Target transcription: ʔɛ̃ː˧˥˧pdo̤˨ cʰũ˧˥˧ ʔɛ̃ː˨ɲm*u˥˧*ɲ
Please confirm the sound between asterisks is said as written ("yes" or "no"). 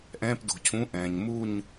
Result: yes